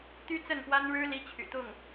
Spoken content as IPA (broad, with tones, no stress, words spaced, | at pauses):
t̪y˥t͡sə˥˩npwa˥nɻɻ̩˥ li˥t͡ɕʰy̰˨˩t̪ʊ˥˩ŋ